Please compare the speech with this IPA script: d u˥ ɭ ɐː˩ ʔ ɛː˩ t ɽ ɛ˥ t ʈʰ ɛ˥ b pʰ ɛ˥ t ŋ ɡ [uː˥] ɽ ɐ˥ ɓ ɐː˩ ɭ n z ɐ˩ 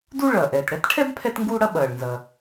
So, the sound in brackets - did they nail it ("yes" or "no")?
yes